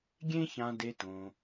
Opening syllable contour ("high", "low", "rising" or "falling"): high